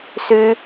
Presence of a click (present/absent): absent